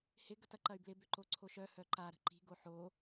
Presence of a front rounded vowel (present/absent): present